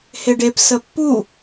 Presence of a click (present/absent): absent